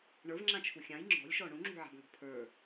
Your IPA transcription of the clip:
ɳ ə˞ v ŋ͡ǁ ã t͡ʃʰ u xʲ ã j ŋ͡ǁ ɔ̤ lʲ ʃ ɔ ɳ ũ ŋ͡ǁ ṳ ʕ a̤ b ŋ ɔ̤ pʰ ə˞

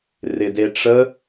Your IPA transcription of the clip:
r ɪ d e ʈ͡ʂ ə

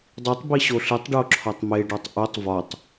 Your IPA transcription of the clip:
dˤ i tˤ b i ɕ o ɬ i tˤ ɖ o ǁʰ ɒ tˤ m e ɖ ɒ tˤ ʔ u tˤ v ɒ tˤ

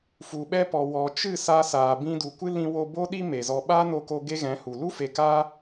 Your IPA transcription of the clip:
f u˨ ɓ ɛ˧ p ɔ˨ w ɔ˨ t͡ʃ ɨ˦˨ s a˧ s aː˨ b ĩ˧ d u˨ kʷ ɨ˦ l ĩ˧ w o˧ b o˦ ɗ i˦ m e˨ z ɔ˧ ɓ aː˦ n o˧ k o˧ ɡ e˦ ɣ ɛ̃˨˦ h u˨ l u˦ f e˨ k aː˦

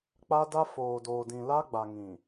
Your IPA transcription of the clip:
k͡p a˦ d a˦ f oː˨ d oː˨ d ĩ˨ l a˦ ɡ͡b a˨ ŋ ĩ˨

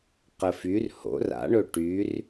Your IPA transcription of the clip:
q ə f y r h o̰ r a̰ ɳ ɵ ʈ y r

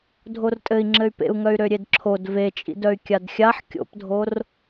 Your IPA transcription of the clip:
dʱ o r tʼ ɘ i̯ ŋ͡ǁ ɘ y̯ p ḛ u̯ ŋ œ y̯ ɾ ø ɾʲ e d ǁʰ o d v e t͡ʃʼ ḭ d œ y̯ kʲ a d xʲ a ħ kʲ o̰ p dʱ o r

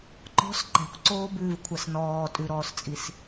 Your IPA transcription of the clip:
ǃ ɔ̤ s ǃ ɛ̤ kʷ ǀ oː b ʉː v kʷʰ a s n ɔː tʼ ʉ ɾ ɔː s t͡sʼ i s

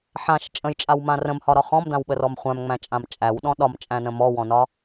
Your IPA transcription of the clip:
ħ ã ʃ t͡ʃʼ ə̃ j t͡ʃʼ a w m ã r ə̃ m h ɒ ɾ ɒ χ ɔ̃ m d ã w ɓ ə r ɔ m χʷ æ̃ m ŋ͡m æ̃ t͡ʃʼ ã m t͡ʃʼ æ w ɗ ɔ̃ ɗ ɒ m t͡ʃʼ æ̃ n ə̃ m ɔ w ɔ̃ n ɒ

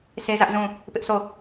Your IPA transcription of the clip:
s e˦ z ä˦ ʔ z ũ˦˨ | p ɪ˦ ʔ sʰ o˦˨

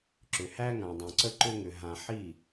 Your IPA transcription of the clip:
ǁ ʏ˨ h æ˦ ŋ ã˨ dˤ õ˨ ǀ ə˦ ǃ ʏ˦ ŋ ʏ˨ ɦ ã˨ ħ i˦˨

